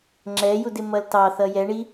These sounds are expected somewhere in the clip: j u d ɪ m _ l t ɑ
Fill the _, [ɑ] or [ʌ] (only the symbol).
ʌ